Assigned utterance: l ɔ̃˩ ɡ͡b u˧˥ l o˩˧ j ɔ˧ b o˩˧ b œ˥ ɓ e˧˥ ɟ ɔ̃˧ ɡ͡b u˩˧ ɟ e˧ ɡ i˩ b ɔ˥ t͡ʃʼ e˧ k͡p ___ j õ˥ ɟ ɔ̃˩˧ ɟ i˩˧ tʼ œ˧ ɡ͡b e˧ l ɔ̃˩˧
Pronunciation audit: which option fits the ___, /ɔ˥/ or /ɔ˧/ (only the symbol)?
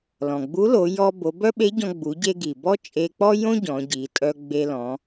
ɔ˥